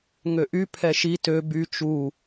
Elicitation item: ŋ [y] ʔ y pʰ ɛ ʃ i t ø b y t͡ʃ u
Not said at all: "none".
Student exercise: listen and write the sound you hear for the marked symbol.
ø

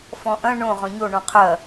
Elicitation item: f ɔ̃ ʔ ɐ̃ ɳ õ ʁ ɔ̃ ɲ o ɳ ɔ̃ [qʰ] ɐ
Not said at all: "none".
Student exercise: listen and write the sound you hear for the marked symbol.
qʰ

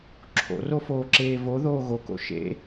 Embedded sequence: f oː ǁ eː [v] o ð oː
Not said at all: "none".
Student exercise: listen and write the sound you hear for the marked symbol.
v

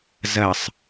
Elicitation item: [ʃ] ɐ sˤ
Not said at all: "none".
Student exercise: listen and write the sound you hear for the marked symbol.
z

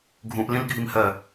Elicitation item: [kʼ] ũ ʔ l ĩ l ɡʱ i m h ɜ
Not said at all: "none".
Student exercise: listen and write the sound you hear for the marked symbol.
ɡʱ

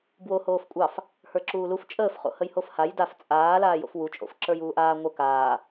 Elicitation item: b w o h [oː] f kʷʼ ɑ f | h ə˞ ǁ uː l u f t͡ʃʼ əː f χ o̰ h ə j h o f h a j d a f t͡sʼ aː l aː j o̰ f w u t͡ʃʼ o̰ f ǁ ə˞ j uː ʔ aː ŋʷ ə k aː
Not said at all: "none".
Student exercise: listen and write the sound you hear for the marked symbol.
oː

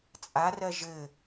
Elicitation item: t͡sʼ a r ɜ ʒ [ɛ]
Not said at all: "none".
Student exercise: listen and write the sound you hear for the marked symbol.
ɘ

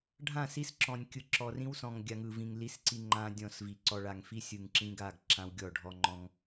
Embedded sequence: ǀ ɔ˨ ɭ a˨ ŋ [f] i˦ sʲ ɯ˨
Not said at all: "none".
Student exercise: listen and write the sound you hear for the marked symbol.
f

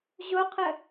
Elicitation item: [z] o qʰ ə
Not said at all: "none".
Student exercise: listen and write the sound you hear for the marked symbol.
ʑ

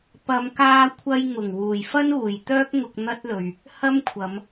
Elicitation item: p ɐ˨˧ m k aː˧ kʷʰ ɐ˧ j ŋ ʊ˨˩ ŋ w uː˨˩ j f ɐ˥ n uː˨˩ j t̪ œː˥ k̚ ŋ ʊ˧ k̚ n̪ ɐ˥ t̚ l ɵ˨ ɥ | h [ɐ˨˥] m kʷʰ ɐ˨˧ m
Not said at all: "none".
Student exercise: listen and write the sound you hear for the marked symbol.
ɐ˥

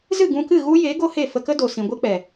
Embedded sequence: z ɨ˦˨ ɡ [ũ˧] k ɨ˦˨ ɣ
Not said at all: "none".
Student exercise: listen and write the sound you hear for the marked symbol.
ũ˧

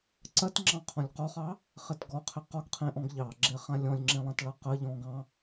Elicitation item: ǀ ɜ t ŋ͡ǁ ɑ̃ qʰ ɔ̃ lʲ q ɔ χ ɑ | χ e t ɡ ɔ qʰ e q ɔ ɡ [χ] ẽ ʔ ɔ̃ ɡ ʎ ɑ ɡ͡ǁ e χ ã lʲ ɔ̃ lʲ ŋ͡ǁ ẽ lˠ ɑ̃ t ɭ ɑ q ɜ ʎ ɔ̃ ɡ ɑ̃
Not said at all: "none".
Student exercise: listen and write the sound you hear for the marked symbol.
qʰ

